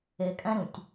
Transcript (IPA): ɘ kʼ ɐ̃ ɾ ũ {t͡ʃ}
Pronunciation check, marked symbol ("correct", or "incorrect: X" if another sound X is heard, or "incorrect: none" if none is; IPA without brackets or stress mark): incorrect: tʲ